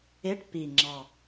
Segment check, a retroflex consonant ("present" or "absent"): present